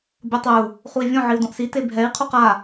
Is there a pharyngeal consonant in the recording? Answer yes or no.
yes